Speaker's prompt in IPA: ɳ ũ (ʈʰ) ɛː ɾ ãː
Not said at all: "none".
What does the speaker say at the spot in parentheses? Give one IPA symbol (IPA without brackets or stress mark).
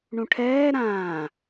ʈʰ